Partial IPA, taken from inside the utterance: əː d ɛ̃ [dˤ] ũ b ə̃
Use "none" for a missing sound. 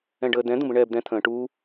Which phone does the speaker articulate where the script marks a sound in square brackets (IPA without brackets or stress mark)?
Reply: d̪